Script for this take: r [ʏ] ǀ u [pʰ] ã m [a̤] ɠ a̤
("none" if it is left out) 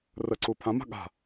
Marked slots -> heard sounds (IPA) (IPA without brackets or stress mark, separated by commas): ə, pʰ, a̤